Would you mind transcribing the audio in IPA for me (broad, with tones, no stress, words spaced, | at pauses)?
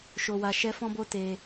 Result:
ʃo˧wa˧ ʃɛ˦fɔ̃˦bo˦ te˧